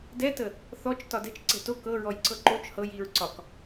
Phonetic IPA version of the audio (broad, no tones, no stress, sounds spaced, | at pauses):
d ɛ t ə | θ ɔ t͡ʃ t ɒ d ɛ̤ t͡ʃ ǀ ɛ̤ t o k ɤ ɹ ɔ j ǀ ɤ ǃ o t͡ʃ h ɤ j i ɹ ǀ ɒ k